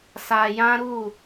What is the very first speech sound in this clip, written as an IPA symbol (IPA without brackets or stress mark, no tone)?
s